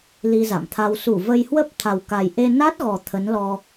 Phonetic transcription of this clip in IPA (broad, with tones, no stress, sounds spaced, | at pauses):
l i˧ z a̰˧˨ m t̪ʰ a˧ w s u˧˩ v ə˧ j h w ə˦˥ p̚ t̪ʰ a˨˩ w k a˨˩ j ʔ e˧ n a˦˥ t̚ ɣ ɔ˨˩ t̪ʰ ə˨˦ n l ɔ˧